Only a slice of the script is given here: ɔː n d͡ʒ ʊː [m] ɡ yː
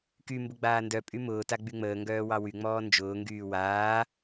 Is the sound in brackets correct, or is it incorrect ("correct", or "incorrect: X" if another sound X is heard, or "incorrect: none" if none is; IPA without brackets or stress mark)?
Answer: incorrect: ŋ